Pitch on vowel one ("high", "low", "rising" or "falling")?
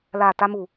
low